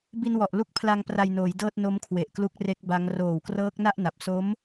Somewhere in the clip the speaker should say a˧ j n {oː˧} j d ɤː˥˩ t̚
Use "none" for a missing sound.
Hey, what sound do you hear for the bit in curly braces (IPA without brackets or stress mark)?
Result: oː˩˦